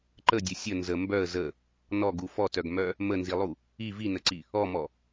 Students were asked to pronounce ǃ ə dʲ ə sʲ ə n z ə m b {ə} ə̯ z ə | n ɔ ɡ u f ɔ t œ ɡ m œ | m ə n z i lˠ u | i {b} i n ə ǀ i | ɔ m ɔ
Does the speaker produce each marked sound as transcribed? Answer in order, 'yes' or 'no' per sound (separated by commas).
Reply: no, no